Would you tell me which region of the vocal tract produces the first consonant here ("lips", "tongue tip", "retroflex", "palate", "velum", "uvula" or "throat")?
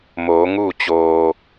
lips